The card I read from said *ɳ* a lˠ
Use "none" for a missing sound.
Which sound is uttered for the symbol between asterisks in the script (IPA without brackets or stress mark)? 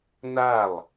n